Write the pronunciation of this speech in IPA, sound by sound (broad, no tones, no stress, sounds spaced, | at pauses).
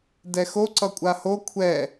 d ɛ x o ǀ ʌ kʷʼ a h o kʷʰ ɛ